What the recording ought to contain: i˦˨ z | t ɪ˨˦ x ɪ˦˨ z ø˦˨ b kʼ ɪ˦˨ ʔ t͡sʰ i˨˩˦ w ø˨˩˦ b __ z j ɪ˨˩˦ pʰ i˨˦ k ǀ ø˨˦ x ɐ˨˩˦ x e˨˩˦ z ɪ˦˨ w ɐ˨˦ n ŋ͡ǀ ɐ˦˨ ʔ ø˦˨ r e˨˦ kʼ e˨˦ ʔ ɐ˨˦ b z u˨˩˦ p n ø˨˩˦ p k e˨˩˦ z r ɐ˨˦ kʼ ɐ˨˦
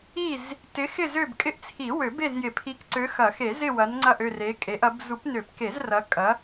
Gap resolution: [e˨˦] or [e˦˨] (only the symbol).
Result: e˦˨